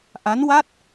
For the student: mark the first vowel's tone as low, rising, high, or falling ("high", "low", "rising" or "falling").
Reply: rising